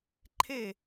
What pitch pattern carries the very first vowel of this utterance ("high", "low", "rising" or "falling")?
falling